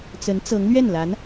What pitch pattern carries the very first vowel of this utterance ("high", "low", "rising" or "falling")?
rising